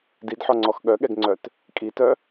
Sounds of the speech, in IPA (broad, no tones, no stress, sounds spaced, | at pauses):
d i d ħ ɔ ŋ͡ǀ ɔ x ɠ œ ɠ ɛ ɡ ŋ͡ǀ œ t | kʼ i t œ